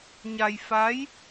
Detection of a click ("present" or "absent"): absent